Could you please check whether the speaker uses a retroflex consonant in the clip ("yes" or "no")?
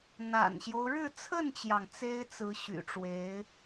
yes